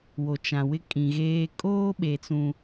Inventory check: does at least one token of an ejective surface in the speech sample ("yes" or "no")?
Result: yes